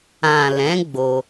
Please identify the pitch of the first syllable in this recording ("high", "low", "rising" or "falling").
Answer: low